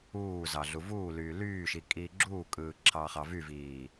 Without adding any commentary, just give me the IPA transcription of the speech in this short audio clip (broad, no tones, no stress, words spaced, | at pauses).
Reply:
uːzɑ ɮuvuːlyː lyːʃi kʼiːɡ͡ǁuːkʼɯː ǁʰɑχɑvyviː